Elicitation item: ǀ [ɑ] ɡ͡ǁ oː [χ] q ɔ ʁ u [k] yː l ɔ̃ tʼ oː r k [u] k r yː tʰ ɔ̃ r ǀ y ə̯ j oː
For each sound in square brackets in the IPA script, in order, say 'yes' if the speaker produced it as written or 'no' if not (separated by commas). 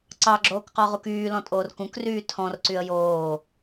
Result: yes, no, yes, no